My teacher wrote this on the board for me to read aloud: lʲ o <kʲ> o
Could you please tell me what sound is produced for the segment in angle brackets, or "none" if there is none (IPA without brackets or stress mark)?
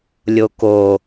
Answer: k